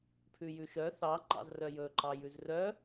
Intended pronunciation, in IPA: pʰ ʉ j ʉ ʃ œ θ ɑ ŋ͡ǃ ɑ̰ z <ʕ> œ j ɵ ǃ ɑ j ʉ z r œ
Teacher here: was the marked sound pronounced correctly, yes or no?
no